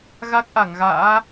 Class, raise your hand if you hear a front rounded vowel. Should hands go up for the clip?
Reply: no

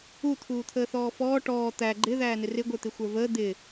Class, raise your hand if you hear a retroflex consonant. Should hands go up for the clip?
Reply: yes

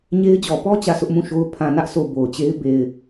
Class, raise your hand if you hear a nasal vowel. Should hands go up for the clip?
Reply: yes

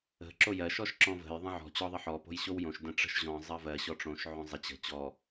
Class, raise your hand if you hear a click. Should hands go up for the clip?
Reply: yes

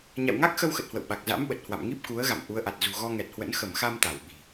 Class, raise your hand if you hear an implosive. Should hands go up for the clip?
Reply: yes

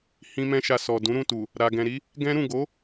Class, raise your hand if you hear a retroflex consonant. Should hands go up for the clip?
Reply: no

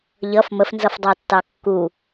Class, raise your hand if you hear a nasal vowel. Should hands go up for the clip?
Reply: no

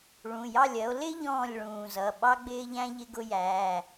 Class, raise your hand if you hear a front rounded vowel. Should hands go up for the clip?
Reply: no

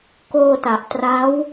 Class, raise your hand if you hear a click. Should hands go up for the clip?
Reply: no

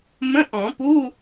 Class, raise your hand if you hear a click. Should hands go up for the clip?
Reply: no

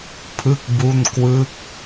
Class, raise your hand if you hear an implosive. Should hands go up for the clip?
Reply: no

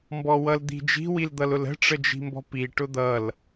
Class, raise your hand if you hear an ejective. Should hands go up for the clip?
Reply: no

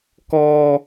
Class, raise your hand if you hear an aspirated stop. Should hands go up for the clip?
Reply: no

